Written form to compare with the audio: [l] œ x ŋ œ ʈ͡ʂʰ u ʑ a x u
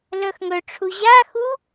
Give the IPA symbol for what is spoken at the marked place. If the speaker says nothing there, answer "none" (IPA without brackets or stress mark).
l